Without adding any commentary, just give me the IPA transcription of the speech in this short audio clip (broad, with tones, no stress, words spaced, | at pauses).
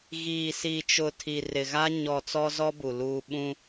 ɣiː˨si˨t͡ʃʊ˨ tʰi˨rɪ˨ɣa˦ ɲɔ˨ t͡sɔ˦zɔ˦bu˨ luː˨ ɓũ˦